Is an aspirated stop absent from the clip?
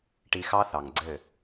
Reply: yes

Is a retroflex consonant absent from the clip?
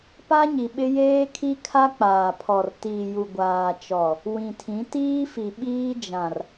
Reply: yes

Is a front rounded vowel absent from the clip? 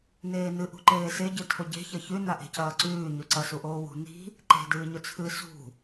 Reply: yes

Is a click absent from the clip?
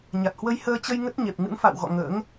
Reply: yes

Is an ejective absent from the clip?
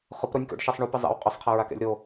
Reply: no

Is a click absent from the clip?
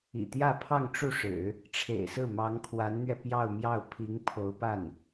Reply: yes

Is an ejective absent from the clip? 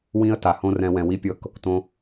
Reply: yes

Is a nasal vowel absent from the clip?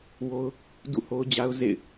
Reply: yes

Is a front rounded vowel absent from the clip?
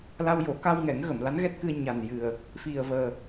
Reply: yes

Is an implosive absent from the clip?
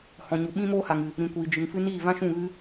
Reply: no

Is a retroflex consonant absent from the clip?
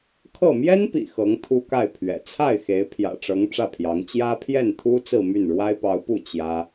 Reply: no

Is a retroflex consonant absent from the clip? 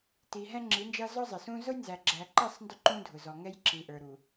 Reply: yes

